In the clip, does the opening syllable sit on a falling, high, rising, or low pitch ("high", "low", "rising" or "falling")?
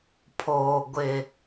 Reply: low